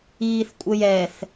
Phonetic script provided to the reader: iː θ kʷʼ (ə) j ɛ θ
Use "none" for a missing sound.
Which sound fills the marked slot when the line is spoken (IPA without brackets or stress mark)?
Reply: ə